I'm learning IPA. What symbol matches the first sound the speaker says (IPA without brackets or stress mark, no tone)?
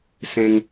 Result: s